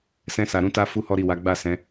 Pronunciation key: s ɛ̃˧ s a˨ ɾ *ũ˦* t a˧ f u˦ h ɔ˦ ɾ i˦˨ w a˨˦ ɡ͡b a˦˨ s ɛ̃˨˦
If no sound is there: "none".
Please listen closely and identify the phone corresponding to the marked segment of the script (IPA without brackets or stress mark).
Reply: ũ˨˦